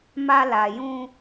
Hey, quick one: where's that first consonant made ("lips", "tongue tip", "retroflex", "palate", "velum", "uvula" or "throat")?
lips